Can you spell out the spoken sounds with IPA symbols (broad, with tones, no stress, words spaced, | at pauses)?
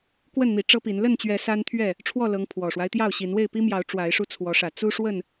kwə˥˨nn̪i˨˦ ʈ͡ʂɤ˦pi˨˦n lə˥˨nt͡ɕɥɛ˨˦ sa˦nt̪ʰɥɛ˥˨ | ʈ͡ʂʰwɔ˥˨lɤ˨˦ŋ pʰwɔ˨˩ʂwa˦ɪ̯t̪jɑ˥˨ʊ̯ɕi˨˦n we˥˨ɪ̯pi˦mjɑ˨˦ʊ̯ ʈ͡ʂwa˨˦ɪ̯ʂu˧ t͡sʰwɔ˨˦ʂä˨˩ t͡su˦ ʂwə˥˨n